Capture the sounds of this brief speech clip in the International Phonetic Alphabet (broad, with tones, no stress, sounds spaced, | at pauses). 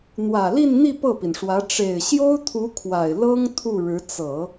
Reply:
n̪ w ä˨˩ l i˥˧ n n̪ i˥˧ p ɤ˥˩ p i˩ n ʂ w ä˧˥ ʈ͡ʂ e˨˩ ɪ̯ ɕ j o˥ ʊ̯ t̪ʰ u˧˥ kʰ w a˨˩ ɪ̯ l ɤ˥ ŋ t̪ʰ u˥˩ ɻ ɻ̩˧˥ t͡s ɤ˨˩˦